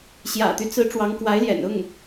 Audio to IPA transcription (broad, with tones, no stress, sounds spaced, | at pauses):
ɕ j ä̰˨˩ t̪ y˦ t͡s ɹ̩˧˥ ʈ͡ʂ w ɑ˧˥ ŋ k w a˧˥ ɪ̯ l j ɛ̰˨˩ n ʊ˥˩ ŋ